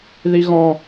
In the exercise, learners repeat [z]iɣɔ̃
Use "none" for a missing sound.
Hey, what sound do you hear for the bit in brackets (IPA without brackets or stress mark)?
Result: ð